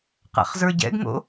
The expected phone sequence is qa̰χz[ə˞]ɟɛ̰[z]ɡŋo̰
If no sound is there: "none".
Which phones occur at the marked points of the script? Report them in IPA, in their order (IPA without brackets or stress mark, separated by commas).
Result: ə˞, none